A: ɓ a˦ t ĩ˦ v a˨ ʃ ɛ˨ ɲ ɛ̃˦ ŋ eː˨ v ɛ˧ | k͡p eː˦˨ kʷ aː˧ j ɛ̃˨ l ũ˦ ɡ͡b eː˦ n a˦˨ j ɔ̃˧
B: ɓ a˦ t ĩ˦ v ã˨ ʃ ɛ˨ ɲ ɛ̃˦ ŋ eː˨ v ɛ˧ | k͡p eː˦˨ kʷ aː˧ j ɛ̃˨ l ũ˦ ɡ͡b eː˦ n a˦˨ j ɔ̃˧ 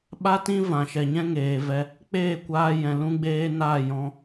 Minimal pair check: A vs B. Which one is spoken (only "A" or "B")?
B